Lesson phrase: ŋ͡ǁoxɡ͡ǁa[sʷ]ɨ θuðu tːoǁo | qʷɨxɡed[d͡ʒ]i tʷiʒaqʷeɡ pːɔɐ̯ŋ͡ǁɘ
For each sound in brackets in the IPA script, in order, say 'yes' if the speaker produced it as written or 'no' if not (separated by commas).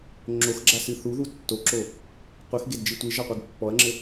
no, yes